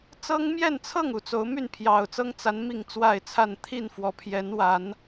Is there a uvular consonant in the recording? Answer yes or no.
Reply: no